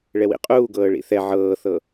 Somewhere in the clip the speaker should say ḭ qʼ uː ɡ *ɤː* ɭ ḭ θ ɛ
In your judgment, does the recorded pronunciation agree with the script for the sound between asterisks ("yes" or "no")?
yes